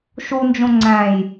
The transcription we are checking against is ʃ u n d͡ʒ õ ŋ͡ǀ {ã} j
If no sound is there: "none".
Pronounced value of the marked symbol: æ̃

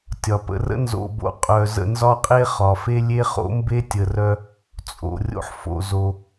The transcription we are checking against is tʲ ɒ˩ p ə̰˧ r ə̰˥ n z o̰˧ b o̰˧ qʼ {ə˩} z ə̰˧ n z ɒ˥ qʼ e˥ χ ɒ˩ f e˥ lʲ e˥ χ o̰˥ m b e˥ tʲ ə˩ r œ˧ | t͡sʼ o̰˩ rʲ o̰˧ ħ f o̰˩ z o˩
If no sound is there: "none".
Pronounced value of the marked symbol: œ˩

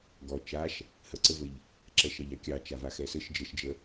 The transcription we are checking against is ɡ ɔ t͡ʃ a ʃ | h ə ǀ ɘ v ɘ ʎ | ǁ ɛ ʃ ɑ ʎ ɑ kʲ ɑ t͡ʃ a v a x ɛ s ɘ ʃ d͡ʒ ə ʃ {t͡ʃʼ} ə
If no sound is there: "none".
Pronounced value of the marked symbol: d͡ʒ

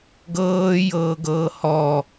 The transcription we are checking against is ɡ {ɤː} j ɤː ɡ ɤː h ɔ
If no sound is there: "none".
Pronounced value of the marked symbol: ɤː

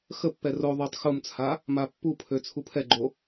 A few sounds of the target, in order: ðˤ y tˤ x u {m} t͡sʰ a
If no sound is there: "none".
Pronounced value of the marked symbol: m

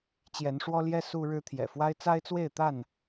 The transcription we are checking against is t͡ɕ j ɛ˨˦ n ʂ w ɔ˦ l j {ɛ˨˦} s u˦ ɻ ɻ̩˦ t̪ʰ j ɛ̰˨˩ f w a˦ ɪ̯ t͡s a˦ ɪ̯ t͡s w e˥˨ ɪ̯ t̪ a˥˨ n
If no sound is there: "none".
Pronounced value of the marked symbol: ɛ˦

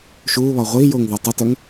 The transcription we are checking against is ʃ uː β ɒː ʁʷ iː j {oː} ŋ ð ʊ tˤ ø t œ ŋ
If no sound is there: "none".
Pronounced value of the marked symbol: oː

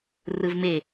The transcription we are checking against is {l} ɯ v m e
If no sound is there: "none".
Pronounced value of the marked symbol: r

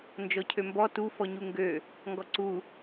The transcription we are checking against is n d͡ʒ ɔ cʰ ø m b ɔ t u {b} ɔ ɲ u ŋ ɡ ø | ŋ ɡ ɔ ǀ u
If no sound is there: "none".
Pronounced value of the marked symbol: f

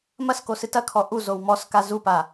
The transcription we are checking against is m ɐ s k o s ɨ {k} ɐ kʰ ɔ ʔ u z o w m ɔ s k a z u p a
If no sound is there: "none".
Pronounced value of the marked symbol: t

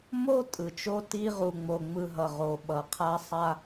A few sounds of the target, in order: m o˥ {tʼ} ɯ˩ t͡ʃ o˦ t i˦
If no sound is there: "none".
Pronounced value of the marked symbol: tʼ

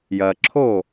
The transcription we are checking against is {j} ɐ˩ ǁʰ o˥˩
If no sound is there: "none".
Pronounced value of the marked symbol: j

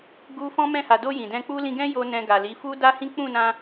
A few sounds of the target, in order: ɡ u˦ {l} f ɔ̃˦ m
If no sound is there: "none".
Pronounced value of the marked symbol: none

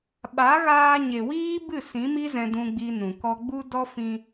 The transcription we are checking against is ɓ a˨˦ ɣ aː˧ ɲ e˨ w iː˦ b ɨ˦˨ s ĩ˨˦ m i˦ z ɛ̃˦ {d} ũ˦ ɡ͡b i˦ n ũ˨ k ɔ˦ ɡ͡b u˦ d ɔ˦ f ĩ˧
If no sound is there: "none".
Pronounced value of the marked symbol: d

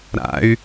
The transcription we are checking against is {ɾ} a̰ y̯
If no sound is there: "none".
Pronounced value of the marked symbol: ɾ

